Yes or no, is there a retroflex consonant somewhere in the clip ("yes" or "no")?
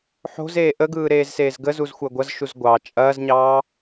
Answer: no